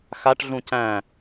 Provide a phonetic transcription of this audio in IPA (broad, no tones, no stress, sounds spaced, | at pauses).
x a ʈ ɮ ũ c æ̃